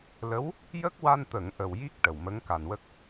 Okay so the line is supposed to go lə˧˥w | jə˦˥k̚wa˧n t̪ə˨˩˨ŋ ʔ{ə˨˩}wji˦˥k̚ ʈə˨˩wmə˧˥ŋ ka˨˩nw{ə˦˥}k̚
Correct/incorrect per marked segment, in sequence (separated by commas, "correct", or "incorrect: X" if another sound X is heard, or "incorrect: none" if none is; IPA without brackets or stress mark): correct, correct